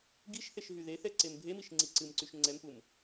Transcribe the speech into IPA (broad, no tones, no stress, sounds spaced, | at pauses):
ɡ i ʃ θ e ʃ ɦ y ð e θ ɛ ǀ e m bʱ e m i ʃ ŋ͡ǀ i ǀ ɨ m ǀ y ʃ ŋ͡ǀ ɛ m p u m